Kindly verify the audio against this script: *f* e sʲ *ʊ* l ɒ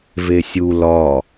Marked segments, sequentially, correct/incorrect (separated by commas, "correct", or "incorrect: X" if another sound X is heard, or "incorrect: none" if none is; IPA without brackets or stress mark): incorrect: v, incorrect: u